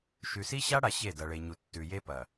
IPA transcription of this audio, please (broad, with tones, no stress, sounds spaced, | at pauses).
ʃ ʉ˨ s i˦ ɕ a˦ ɽ a˨ ɕ e˦˨ d ɐ˨ ɭ e˨ ɲ u˨ tː ʉ˨ j e˦ p ɐ˨